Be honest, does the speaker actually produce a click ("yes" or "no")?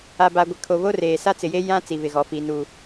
no